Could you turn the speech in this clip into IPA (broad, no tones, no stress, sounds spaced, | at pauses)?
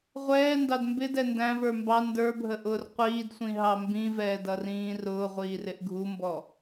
ʁʷ ɛː n d ɑ d m b ɪ d ɛ n d æ̃ v ə˞ m b ɑ n d ə˞ bʱ ə ʔ ʊː r qʷ iː d sʷ ĩ ɦ ɑ m b ĩ v ɛː d ʌ r ĩː r ʊː ʁʷ iː r ɪ ʔ ɡʱ u m b ɔ